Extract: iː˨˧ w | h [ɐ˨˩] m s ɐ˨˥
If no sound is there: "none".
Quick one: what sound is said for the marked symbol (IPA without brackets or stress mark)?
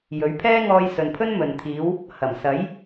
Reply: ɐ˨˩